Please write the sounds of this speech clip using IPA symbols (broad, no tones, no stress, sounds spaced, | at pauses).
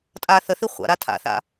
tʼ aː θ ə θ i χʷ a̰ ɾ a tʰ a̰ θ a̰